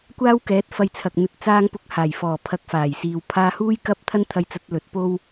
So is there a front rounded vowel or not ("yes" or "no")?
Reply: no